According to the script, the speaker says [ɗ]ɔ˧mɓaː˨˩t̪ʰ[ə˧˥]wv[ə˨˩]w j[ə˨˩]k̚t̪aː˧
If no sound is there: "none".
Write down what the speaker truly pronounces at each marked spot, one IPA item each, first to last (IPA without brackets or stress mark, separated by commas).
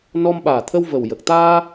n, ə˧, ə˨˩, ə˨˩